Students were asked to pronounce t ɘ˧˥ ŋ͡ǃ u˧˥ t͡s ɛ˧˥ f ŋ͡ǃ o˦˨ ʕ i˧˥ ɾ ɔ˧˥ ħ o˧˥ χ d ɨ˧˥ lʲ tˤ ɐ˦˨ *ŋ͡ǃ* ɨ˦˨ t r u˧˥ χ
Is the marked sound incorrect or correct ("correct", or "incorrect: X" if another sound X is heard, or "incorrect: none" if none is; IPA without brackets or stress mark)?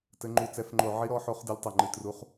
correct